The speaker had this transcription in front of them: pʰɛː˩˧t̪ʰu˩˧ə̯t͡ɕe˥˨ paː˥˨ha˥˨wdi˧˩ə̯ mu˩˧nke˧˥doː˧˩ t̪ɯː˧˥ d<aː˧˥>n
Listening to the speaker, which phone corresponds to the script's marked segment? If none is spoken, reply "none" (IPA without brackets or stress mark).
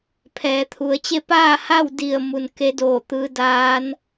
aː˧˥